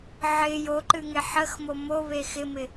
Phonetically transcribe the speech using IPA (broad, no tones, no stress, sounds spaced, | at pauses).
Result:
ʕ ɪ j o ǃ ɨ ŋ e ħ ə x m o m o β e x ɪ m ɪ